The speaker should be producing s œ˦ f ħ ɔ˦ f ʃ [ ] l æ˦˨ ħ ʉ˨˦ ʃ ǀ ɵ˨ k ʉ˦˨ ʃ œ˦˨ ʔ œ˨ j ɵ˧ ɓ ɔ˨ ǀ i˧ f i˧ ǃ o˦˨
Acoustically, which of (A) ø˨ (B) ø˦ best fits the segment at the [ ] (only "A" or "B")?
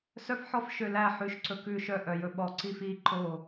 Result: A